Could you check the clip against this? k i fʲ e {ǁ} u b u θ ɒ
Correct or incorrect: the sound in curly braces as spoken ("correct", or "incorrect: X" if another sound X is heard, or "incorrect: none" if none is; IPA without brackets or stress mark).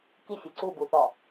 incorrect: ǀ